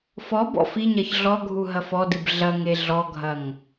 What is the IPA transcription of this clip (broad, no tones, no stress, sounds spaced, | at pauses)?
f ɔ b ɔ̰ f i ɲ ɐ ç ɮ ɔ ɡʱ u ɦ ɐ f ɔ d ɨ b ɮ ɐ ŋ e ɮ ɔ ɡʱ ɐ ŋ